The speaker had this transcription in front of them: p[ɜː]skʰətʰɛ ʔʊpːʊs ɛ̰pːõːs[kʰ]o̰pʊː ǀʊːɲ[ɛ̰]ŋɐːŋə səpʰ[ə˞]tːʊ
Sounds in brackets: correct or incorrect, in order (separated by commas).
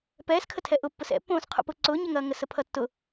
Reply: incorrect, incorrect, incorrect, incorrect